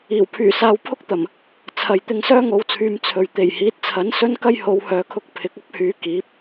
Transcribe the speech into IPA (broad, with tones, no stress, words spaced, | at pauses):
iː˨˩w pʰyː˨˩saː˧w pʰʊ˥k̚t̪ɐ˨˩m | t͡sʰɐ˨j t̪ɪ˧ŋsœː˥ŋo˨˧wt͡sʰyː˨˧m t͡sʰɵ˨ɥ t̪e˨˩jhiː˨˥t̚t͡sʰɐ˨˥n sɵ˥nkɐ˥j ho˨˧whœː˨kʰʊ˧k̚ pʰɪ˨˥k̚ɐ˥p̚hyː˨˧ kiː˨˥p̚